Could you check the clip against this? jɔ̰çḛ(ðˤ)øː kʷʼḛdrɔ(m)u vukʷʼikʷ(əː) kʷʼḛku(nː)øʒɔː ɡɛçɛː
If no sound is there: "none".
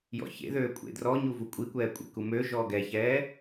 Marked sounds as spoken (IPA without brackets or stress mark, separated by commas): ð, ɲ, ɛː, m